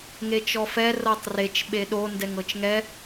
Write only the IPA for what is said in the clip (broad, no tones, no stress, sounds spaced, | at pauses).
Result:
ŋ e t͡ʃ ɔ f ɛ r ɤ tˤ r e t͡ʃ ɓ e ɗ o n d ɛ ŋ ɤ t͡ʃ ŋ ɛ